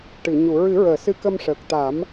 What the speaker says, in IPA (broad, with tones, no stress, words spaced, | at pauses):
ʈɨ˨˩˨ ɲu˨˩˨ɹɨ˨˩˦ɹəː˨˩˨ sɨ˧kə˧mʂəː˨˩k̚t̪a˨˩˦m